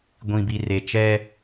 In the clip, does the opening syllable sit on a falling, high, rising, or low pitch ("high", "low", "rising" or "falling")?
low